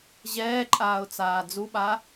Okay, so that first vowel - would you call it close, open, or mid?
mid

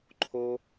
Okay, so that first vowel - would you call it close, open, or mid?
mid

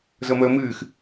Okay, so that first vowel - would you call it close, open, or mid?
mid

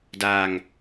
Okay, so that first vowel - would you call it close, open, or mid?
open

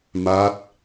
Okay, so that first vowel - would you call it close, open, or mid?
open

